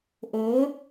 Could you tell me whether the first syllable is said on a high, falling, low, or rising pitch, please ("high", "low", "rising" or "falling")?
rising